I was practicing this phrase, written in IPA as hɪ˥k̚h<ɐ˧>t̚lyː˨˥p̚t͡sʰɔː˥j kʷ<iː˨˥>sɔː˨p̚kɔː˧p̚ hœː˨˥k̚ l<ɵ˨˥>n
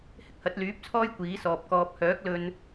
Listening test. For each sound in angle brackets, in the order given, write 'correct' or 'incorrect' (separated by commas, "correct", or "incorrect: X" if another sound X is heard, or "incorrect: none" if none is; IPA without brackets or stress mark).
incorrect: ɐ˨˥, correct, incorrect: ɵ˧